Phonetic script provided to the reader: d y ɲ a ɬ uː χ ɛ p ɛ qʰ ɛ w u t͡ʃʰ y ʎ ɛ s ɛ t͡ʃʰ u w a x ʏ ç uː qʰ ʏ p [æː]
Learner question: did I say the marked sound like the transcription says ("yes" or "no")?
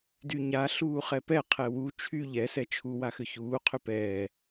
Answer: no